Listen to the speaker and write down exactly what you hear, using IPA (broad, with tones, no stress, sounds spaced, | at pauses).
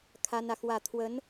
kʰ a˥ n ä˨ x w ä˥˩ t̪ʰ w ə˧˥ n